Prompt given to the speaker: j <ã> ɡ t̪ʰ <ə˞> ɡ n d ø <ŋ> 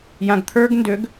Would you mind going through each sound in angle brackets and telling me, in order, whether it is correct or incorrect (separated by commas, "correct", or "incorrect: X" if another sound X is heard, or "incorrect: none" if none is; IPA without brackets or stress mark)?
correct, correct, incorrect: ɡ